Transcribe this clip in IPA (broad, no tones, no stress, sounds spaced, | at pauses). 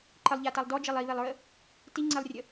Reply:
ǃ ə lˠ ʎ a t a lˠ d ɔ d͡ʒ e lˠ i β e lˠ ɹ ə | t i ŋ͡ǀ e lˠ rʲ ə